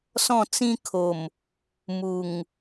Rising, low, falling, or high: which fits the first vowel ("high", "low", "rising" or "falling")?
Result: falling